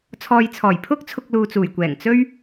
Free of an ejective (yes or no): yes